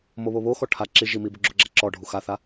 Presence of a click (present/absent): present